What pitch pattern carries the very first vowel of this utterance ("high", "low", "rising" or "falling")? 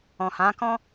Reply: low